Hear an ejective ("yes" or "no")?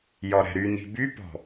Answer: no